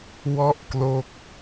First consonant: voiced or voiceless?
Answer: voiced